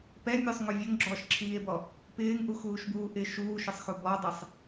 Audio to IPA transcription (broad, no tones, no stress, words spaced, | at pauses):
pɛmʲosˤŋo vʲoŋɡ͡ǁɔːʃǁʰiːe̯bɔ | pɪːŋʔuxuːʃbuː ʔɪ ʃuːʃɪsˤxu bɔdˤisˤ